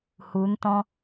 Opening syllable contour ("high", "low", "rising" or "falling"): rising